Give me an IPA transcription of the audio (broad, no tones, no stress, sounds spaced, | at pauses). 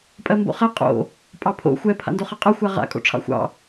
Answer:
pʼ ɜ m b o̰ χ ɛ qʼ o̰ | pʼ ɑ pʰ o̰ xʷ ɛ pʰ a̰ n d o χ ɜ qʼ ɑ xʷ a ʁ a̰ kʼ o̰ ʈ͡ʂʰ ɑ̰ xʷ ɑ̰